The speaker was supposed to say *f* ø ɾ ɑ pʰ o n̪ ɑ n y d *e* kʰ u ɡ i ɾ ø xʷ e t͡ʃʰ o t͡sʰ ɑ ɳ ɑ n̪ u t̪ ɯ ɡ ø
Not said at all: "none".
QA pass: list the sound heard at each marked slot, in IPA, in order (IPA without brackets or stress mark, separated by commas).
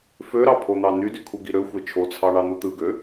f, y